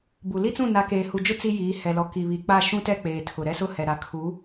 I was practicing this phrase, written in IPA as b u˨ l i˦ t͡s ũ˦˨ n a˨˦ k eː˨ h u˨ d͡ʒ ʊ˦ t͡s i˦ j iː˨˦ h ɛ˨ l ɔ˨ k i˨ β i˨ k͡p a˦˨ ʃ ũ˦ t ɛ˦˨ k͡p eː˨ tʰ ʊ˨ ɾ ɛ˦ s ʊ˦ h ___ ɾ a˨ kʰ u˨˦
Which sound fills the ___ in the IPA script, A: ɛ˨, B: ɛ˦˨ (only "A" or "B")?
A